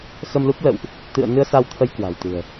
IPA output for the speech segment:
xə˧mlu˦˥p̚ lə̰˧˨wʔ | t̪ɨ̰˧˨ə̯nɨ˧ə̯ sa˧wt̪ʰə˧j kwa̤˨˩wt̪ɨ̤˨˩ə̯

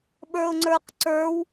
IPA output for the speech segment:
ɓə˞ʊ̯ŋ͡ǀə˞qǀə˞w

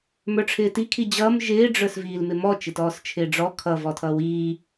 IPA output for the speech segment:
mə˞ʈ͡ʂʰɪːti kʰid͡ʑʌːm ʒɪː ɖ͡ʐə˞sviːlmɪmɔ t͡ʃɪtɔːst͡ʃʰɪːɖ͡ʐɔ kʰʌ vɔtʰʌːwiː

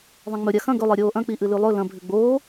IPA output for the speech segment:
ðˤɐ̃ŋ͡mɵ ɾʲaxɐ̃ ɡɵ lˠeɾʲoːʔɐ̃ k͡piʔɨlʉlˠɵ lɐ̃ bʱʉɡ͡boː

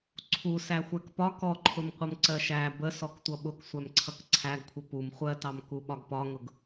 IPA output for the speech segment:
ǀʰu sæxʷækpɒ kɔǃʰʊmqʷʌm ǀɜʃæ bə sɔktʷʌɓʊk sʷæmǀʰʌkǀʰæɡkʷʰə pum χʷɜtɑm kuɓɒɡpɒŋʊɡ

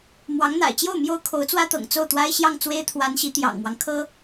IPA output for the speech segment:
mwɑ˧˥ŋn̪a̰˨˩ɪ̯t͡ɕjo˥˩ʊ̯ mjo˥ʊ̯kʰo˧˥ʊ̯t͡swä˥t̪ɤ̰˨˩ŋ t͡so˥˩ʊ̯t̪wa˥ɪ̯ɕjɑ˥˩ŋ t͡swe˥ɪ̯t̪ʰwa˧˥nɕi˧˥ t̪jɑ̰˨˩ŋmwɑ˦ŋ kʰɤ˥

